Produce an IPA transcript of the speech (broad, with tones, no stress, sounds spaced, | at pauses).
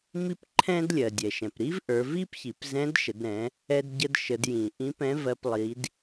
m i˥ p ǃʰ ɛ̃˥ d lʲ ɜ˩ dʲ ɛ˩ ʃ ɛ̃˩ p ɾ i˥ v ʔ ə˞˩˧ v i˥ p ç i˩˧ p z ɛ̃˧˥ d ʃ ə˩˧ d ɾ ɛ̃˩˧ | ɛ˧ d ɟ ə˧ d ʃ ə˩˧ d j ĩ˩ ʔ ĩ˧˥ p ɛ̃˧˥ v ɜ˧ p lˠ i˩˧ d